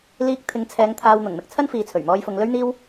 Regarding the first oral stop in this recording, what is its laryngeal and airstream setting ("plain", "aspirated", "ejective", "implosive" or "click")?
plain